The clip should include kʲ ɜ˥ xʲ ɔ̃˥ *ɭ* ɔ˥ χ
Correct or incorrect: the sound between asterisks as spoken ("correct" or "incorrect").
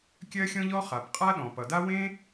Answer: incorrect